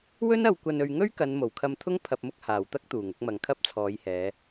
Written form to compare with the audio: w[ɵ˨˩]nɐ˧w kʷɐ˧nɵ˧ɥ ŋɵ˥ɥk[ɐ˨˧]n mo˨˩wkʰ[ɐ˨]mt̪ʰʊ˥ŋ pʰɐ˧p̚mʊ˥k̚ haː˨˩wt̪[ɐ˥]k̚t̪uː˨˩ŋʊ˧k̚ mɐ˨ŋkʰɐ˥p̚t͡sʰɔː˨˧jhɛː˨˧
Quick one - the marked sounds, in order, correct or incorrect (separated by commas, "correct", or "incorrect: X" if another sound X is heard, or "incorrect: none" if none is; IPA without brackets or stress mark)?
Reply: incorrect: ɵ˥, correct, incorrect: ɐ˧, correct